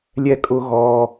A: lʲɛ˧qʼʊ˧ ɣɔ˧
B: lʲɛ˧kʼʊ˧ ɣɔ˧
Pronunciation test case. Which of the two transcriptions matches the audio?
B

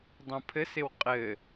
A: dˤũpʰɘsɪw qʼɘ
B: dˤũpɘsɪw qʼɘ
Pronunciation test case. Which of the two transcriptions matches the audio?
A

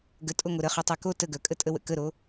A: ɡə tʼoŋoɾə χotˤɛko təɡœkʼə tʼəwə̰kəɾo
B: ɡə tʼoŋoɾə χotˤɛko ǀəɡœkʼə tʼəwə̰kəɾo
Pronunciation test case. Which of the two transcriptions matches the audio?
A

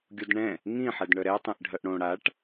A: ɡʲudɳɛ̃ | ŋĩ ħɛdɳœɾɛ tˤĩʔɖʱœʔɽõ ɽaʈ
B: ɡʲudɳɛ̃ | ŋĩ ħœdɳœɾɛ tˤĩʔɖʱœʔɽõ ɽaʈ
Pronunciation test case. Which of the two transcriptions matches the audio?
A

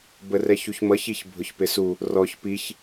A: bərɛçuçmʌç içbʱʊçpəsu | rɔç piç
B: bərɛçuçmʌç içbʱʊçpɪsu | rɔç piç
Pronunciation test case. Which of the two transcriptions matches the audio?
B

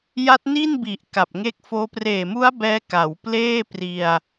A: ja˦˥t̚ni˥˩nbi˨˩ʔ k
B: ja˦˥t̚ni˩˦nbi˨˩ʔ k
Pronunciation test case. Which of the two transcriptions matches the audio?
A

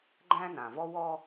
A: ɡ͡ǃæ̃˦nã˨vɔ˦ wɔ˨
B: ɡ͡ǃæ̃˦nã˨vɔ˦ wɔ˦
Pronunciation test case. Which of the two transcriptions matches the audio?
B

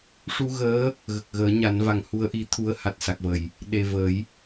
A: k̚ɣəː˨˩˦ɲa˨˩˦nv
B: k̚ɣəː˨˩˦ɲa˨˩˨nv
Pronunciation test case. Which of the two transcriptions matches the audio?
A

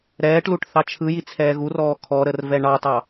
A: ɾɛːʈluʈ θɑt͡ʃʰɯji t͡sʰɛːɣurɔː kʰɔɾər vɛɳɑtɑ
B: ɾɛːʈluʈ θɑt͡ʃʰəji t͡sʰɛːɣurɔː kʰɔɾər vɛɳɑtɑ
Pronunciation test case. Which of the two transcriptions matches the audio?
A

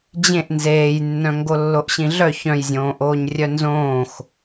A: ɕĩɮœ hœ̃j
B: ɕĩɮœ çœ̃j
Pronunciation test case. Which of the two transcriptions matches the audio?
B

